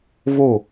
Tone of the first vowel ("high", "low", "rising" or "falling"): falling